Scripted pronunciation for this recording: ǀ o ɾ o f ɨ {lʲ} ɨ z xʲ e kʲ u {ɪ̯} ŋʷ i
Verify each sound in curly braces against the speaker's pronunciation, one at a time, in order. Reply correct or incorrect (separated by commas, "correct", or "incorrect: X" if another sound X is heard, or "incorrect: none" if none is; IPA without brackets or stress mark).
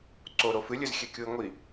correct, correct